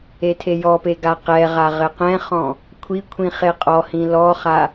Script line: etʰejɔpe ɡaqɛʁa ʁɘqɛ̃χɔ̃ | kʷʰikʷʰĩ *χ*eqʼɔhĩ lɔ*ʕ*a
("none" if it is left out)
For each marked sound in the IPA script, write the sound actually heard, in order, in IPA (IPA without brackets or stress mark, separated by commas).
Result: χ, χ